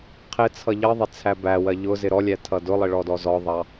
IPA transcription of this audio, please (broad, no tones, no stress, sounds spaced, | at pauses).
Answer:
qʰ ɪ t͡sʰ ʌ ʎ ʌ ðˤ ɪ t͡sʰ æ b æ w ɜ ʎ ʊ z ɪ ɾ ɔ lʲ æ tʰ ʌ d ʊ lˠ ɪ ɭ ɔ d ɔ z ɔ ðˤ ɑ